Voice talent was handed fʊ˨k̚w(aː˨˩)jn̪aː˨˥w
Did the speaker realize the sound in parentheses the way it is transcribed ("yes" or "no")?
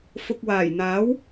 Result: yes